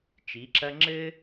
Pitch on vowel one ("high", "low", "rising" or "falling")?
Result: rising